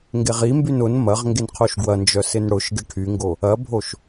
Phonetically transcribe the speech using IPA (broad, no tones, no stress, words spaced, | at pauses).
ŋɡeʁimbyn ʊn mɐʁ ŋɡenqʰoʃɡwɐnd͡ʒœ sɪnɽʊʃɡɪ ʈʰyŋɡo | ɐbʱoʃ